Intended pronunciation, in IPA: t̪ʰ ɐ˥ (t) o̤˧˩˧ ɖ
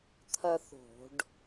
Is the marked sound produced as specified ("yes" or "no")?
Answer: no